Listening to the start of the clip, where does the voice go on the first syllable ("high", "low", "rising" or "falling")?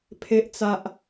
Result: high